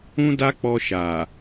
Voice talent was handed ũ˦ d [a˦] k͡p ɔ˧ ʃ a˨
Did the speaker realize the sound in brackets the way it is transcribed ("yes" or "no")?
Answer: yes